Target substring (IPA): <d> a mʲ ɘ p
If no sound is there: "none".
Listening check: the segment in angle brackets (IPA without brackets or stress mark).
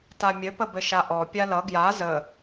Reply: t